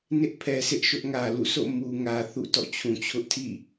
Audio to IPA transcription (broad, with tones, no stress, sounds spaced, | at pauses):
n ɪ˦ ʔ pʰ ɛ˨ sʰ ɪ˦ ʔ ʃ ʊ˦ ʔ ŋ ä˨ l ṵ˦˨ sʰ o̰˦˨ m u˨ ŋ ä˨ θ ṵ˦˨ t ɔ̰˦˨ t͡ɕʰ ũ˨ t͡ɕʰ ʊ˦ ʔ tʰ ḭ˦˨